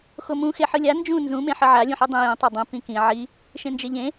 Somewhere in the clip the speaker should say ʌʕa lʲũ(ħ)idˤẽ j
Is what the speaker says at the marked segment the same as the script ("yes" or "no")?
yes